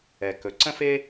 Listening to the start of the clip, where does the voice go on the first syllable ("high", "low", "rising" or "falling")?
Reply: low